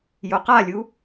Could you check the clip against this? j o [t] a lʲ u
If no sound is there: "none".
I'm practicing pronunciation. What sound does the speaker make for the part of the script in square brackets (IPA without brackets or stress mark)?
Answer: q